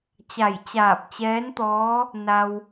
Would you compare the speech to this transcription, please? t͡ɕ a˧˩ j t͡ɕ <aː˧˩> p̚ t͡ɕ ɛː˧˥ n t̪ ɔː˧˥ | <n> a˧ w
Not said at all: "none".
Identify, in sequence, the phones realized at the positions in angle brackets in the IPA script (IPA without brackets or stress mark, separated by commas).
aː˧˩, n